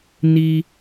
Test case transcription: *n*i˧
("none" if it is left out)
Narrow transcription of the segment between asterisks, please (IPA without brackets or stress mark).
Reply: n